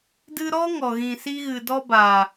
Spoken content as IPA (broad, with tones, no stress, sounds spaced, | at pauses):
d ɨ˧ ɾ ɔ˦ ŋ ɔ˨ ɣ ĩ˨ s i˧ ɣ ɨ˨ d ɔ˧ b a˨